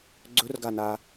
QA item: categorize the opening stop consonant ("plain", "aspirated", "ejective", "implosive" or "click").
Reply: click